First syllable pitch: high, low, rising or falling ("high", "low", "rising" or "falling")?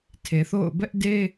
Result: low